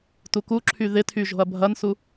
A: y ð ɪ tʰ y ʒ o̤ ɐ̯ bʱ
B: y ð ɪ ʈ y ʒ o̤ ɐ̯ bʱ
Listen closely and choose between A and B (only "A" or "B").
A